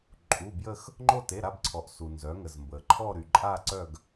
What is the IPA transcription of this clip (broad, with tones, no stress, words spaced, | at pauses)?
ǃʼu˩˧˩bjə˦˨x | ŋ͡ǃo˦˨te˩˧˩ɾa˦˨bǀʰɔ˩ʔ su˩ nzœ˩˧ŋə˩zmbə˩ǃʰɔ˦˨ ɾy˩ ǃʼa˦˨ǀœ˦˨ɡ